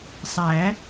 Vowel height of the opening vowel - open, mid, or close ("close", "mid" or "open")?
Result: open